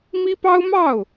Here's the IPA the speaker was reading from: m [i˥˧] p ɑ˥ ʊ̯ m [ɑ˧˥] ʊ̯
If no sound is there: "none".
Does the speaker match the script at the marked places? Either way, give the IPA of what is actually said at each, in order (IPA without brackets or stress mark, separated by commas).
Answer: i˥, ɑ˥˩